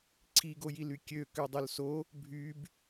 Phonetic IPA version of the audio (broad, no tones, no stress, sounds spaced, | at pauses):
ǀʰ i ɡ o j i l y kʲ ø k ø dˤ œ l s o | bʱ y b